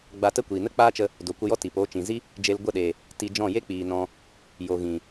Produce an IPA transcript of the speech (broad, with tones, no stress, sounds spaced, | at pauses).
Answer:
ɡ͡b a˧ t ə˦ kʷ iː˨ n ə˦ k͡p aː˦ t͡ʃ ə˧ | d o˨ kʷ ə˧ j ɔ˦ t iː˨ p oː˧ t͡ʃ ĩ˨ z i˦ | d͡ʒ e˧ l ɡʷ ə˦˨ ɗ eː˨ | t i˧ d͡ʒ ɔ̃˦˨ j e˦ k͡p iː˨ n ɔ̃˧ | j o˨ ɣ ĩ˨